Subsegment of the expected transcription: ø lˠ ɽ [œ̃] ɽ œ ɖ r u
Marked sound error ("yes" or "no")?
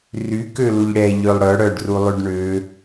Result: yes